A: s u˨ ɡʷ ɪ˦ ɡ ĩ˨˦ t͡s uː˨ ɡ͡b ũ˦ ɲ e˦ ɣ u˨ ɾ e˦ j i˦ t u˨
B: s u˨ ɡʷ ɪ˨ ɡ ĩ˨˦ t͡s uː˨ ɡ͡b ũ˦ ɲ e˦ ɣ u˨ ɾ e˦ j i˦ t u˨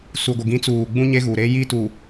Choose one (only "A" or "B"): B